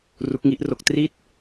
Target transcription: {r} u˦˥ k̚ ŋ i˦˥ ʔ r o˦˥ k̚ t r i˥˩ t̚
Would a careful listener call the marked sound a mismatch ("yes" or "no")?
no